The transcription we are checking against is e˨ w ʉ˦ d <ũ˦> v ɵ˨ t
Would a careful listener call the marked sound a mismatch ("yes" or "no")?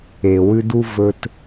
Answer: yes